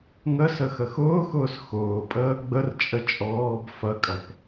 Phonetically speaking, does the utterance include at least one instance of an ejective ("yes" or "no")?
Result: yes